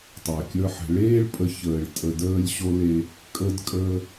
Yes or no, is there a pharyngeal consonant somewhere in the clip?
yes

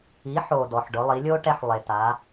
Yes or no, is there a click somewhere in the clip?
no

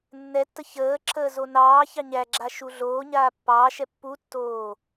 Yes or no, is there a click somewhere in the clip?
yes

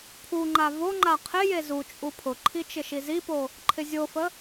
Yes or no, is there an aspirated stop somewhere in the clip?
yes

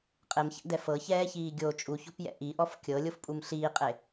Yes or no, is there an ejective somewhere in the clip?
yes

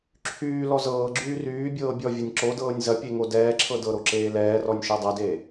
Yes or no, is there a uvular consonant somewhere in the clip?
no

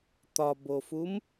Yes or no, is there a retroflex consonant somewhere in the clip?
no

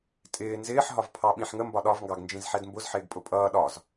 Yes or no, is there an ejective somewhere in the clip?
yes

